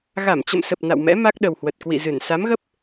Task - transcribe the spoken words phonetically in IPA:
ɣ a˧˩ m t͡ɕ ə̰˧˨ m s ə˨˩ p̚ n a̰˧˨ w m ɛ̰˧˥ m a˦˥ k̚ ɗ ə˨˩ w h w ə˨˩ t̚ k w ḭ˧˨ z ɨ˧˩ n s a˨˦ m ɣ ə˦˥ p̚

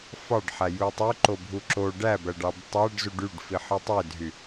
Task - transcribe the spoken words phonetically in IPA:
f ɑ ɖ ħ æ j u tˤ ø ǃ o bʱ u ǁ o ɖ æ b æ ɖ ɑ b tˤ æ ɖ z u ɖ y ɖ f i ħ ɯ tˤ e dʱ y

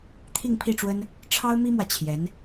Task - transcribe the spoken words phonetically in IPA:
t̪ʰ i˥˧ ŋ pʰ i˥˩ ʈ͡ʂ w ə˥ n | ʈ͡ʂʰ ɑ˥ ʊ̯ m i˥ m w ä˨ t͡ɕʰ j ɛ˧˥ n

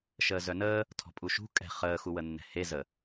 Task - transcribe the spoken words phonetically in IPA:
ʃ əː z œ n əː | tʰ ɔ̤ pʼ u ʃ ṳ kʼ ɛ̤ χ əː x u w ə nː ɛ̤ h e z ə

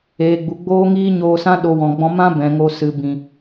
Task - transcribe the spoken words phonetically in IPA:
eː˨ ɡ͡b u˨ ɡ͡b oː˦ ŋ iː˦ ɲ oː˧ s ã˦ ɗ o˧ w ɔ̃˨ ɡ͡b ɔ̃˧ m ã˦ b ɛ̃˨ ŋ o˧ s ɨ˨ b ĩ˨

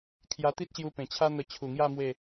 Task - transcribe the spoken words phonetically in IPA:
kʰ j a˧ t̪ i˦ t̚ ɕ j u˧ p ẽ˨˩ t͡ɕʰ a˦ n̪ ə˧ t͡ɕʰ u˨˩ ŋ j a˥˧ m w e˥˧

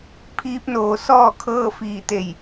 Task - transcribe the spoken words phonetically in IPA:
pʰ iː˧˥ p̚ n oː˩˧ s ɔː˥˨ kʰ ɤː˥˨ f iː˧˩ t̪ e˧˩ j

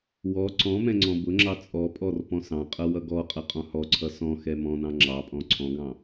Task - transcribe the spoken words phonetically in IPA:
w ɔ ǀ ɔ̃ m ɛ̃ ŋ͡ǀ ɔ̃ b ʊ ŋ͡ǁ ɑ t͡sʼ ɔ pʼ ɔ r p ɔ̃ s ɑ̃ qʼ ʌ w ʌ ɡ ɔ qʼ ʌ qʼ ɔ̃ h ɔ ǀʰ ʌ s ɔ̃ x ɛ m ɔ̃ n ɑ̃ ŋ͡ǁ ɑ pʼ ɔ̃ ǀʰ ɔ̃ ɡ ɑ̃

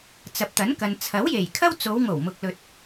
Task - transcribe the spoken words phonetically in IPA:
t͡s ɐ˨ p̚ t̪ ɐ˨˥ n k ɐ˨ n t͡sʰ ɐ˨˥ w j e˨˩ j kʰ ɐ˥ w t͡s o˨˧ w ŋ o˨˩ w m ʊ˨ k̚ l ɵ˨ t̚

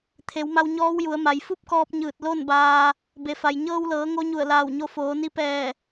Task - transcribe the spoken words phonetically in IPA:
t̪ʰ e˩˧ w m a˧ w ɲ ɔː˧˥ w j u˩˧ ə̯ m a˩˧ j f u˥˨ p̚ k ɔː˧ p̚ ɲ ɯː˧˩ t̚ l o˥˨ n b aː˧ | b e˩ f a˩ j ɲ ɤː˧ w l ɤː˩˧ ŋ o˧˥ ɲ u˧˩ ə̯ l aː˧˩ w ɲ o˧ f oː˩˧ n i˧ p ɛː˧˩

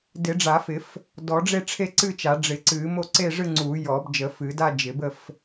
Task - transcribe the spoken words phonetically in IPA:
d ɪ˨˩˦ ɖ͡ʐ a˨˩˦ f ɪ˨˩˦ f | d ɔ˨˩˦ ɖ͡ʐ e˥˧ ʈ͡ʂʰ e˥˧ ǀ ɨ˥˧ t͡ʃ a˨˩˦ ɖ͡ʐ ɪ˨˩˦ ǀ ɨ˨˩˦ m o˥˧ ǀ e˥˧ ʐ ɨ˥˧ ŋ͡ǀ u˨˩˦ j ɔ˨˩˦ b d͡ʒ ə˨˩˦ f ɨ˨˩˦ d a˥˧ d͡ʒ ɪ˨˩˦ b ə˥˧ f

